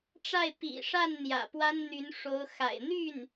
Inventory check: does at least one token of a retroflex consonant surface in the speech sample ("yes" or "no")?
yes